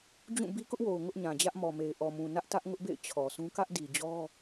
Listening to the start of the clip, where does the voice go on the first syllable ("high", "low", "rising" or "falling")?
falling